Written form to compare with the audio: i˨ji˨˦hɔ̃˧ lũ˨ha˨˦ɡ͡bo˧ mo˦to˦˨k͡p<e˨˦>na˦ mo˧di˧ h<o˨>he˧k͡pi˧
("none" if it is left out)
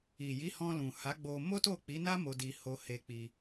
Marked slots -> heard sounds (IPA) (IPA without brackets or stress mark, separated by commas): i˨˦, o˧